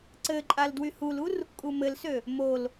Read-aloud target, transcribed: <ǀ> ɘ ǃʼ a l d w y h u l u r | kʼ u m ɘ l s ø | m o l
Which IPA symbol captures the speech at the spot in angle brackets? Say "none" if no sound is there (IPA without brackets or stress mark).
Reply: ǀ